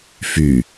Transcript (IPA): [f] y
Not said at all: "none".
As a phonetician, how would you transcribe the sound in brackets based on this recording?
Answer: f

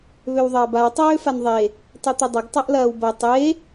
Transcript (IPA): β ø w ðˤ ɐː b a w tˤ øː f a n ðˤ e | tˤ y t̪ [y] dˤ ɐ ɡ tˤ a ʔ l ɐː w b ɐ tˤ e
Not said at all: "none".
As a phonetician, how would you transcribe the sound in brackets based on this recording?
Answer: ɪ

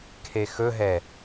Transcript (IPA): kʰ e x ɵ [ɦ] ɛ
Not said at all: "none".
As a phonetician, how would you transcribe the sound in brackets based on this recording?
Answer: ɦ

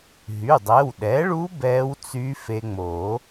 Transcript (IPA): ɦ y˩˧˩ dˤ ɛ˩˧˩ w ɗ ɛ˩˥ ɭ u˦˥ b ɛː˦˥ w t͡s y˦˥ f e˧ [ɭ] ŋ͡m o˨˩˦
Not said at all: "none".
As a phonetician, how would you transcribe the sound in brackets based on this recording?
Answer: none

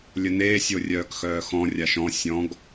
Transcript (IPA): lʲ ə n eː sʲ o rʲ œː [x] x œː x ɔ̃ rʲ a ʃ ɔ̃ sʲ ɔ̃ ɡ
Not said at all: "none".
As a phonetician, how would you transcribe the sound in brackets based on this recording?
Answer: k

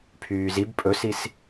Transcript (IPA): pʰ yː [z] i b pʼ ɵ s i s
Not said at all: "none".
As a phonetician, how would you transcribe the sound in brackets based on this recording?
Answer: z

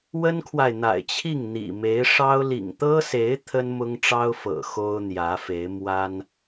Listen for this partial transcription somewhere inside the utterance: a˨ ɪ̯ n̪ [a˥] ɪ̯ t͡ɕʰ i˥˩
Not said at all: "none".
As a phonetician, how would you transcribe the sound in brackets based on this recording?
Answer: a̰˨˩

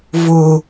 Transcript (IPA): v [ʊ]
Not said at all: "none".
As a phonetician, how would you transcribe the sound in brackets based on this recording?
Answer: ʊ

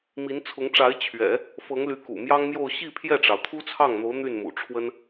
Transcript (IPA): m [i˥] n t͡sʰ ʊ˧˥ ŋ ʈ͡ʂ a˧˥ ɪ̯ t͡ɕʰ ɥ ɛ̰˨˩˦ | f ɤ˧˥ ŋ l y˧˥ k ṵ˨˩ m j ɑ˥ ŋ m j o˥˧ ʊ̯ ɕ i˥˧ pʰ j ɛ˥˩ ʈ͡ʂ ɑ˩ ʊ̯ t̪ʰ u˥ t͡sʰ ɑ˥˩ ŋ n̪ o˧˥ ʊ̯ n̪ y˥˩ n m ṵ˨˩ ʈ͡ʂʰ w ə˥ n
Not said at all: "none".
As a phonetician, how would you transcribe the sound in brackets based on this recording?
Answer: i˧˥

